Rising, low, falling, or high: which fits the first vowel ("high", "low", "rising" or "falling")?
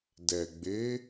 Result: low